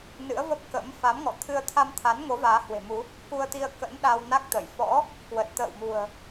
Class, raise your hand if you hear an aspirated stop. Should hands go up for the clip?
yes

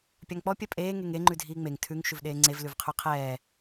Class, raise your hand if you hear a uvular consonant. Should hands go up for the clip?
yes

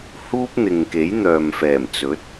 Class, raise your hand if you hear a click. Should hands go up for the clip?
no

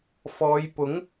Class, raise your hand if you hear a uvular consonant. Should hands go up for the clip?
no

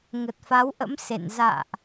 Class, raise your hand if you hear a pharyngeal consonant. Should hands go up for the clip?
no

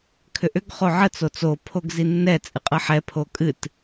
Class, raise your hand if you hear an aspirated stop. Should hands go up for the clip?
yes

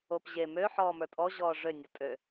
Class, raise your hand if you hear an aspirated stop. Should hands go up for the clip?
no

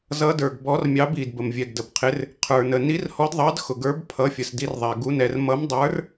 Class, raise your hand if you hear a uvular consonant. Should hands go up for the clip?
yes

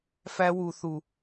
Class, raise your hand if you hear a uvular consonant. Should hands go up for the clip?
no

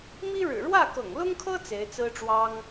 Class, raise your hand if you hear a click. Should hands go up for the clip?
no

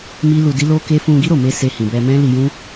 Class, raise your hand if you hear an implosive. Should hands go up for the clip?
no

